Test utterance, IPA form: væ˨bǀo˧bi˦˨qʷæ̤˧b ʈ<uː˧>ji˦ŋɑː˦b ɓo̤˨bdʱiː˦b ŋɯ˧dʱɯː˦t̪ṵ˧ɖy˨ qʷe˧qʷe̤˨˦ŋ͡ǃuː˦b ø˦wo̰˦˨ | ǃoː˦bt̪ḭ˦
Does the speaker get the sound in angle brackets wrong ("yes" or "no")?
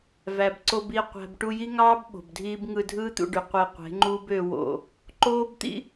yes